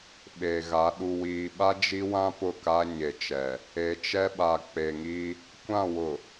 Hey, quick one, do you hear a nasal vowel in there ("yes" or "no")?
yes